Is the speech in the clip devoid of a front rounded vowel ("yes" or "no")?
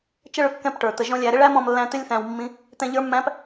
yes